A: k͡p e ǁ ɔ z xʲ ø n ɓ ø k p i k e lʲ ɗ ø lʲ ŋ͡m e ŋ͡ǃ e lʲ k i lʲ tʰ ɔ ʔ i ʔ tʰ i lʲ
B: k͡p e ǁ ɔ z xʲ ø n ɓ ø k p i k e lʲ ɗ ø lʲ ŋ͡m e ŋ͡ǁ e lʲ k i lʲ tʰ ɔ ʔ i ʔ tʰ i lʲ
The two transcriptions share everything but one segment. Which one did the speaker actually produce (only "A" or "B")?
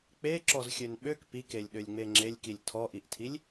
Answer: B